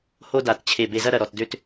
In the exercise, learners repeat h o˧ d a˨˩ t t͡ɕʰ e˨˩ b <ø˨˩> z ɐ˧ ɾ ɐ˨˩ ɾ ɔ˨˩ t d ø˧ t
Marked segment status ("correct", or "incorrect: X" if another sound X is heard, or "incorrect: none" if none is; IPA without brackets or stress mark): incorrect: e˨˩